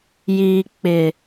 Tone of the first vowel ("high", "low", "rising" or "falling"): low